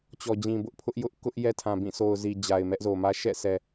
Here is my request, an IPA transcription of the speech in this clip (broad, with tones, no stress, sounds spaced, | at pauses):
t͡ɕ ɔ˨ d͡ʑ ĩ˨ b ʊ˦ ʔ pʰ ʊ˦ ʔ j ʊ˦ ʔ k ʊ˦ ʔ j ɛ˦ tʰ ã˨ b ĩ˦˨ s o˨ ʊ̯ z i˨ d͡ʑ a˨ ɪ̯ m ɛ˦ ʔ z o˨ m ä˦ ʃ ɛ̰˦˨ sʰ ɛ˨